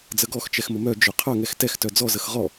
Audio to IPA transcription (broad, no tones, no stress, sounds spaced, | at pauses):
d͡z ə ɡ ɔ x t͡ʃ ɛ x m ə m œ d͡ʒ œ qʰ œ ŋ ɛ x t ɛ x t œ d͡z ɔ z ə x ʁ ɔ